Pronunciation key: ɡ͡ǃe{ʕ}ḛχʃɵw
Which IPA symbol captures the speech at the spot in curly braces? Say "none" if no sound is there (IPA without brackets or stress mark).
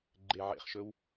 ʕ